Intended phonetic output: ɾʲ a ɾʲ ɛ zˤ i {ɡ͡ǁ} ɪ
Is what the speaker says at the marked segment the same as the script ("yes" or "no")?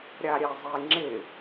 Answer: no